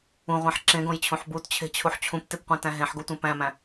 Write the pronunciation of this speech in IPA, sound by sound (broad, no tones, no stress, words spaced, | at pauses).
ũʁʷæ̃ħ ǁẽɡõjt͡ɕʰũħ butt͡ɕʰe̤t͡ɕʰuħ t͡ɕʰũptepqʷẽtæ̃ ɦẽħɡotʷẽ pæ̃mæ̃